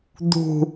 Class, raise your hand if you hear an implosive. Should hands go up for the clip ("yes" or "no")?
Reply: no